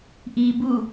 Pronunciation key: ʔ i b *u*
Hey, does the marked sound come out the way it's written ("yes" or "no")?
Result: yes